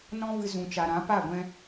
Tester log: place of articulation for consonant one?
alveolar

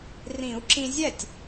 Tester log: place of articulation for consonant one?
alveolar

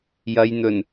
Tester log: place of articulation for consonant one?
palatal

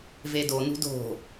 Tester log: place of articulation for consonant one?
labial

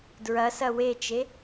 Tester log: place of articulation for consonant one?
alveolar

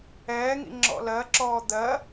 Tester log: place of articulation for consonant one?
velar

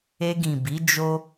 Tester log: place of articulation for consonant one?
velar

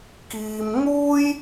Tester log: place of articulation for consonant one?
velar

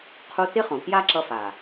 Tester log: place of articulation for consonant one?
uvular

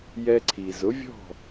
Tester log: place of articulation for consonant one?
palatal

